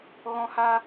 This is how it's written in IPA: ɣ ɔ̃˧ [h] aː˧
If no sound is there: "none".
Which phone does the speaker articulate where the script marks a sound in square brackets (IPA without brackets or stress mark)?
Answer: h